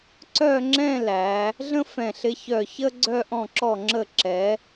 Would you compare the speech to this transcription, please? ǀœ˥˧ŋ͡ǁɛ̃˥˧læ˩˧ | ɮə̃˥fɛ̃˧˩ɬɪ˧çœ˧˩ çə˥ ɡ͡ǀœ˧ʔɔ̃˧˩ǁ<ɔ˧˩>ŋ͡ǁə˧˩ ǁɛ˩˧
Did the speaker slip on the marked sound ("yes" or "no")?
no